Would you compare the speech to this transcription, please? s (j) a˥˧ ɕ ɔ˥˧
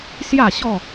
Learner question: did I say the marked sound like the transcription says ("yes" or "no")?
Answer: yes